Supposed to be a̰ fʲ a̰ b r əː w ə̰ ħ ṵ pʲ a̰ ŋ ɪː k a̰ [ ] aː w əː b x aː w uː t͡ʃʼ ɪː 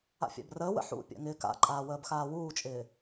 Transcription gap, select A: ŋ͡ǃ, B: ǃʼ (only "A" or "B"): B